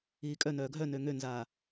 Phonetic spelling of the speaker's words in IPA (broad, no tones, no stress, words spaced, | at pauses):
iːkʼœnœː ɡʱœnø ŋønzaː